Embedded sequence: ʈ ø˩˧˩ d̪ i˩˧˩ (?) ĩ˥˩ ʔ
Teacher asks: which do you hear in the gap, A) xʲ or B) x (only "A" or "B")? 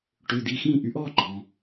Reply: B